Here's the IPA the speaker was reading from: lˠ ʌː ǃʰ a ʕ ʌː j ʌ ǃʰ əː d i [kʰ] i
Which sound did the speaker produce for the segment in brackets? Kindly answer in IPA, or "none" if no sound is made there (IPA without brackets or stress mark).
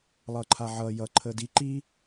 ǃ